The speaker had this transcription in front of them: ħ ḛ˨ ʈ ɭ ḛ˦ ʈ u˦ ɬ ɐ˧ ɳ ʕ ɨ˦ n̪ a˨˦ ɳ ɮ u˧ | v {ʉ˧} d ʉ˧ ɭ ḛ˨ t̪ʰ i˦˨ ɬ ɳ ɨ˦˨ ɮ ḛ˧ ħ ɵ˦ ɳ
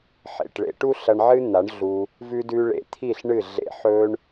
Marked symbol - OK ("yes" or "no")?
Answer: yes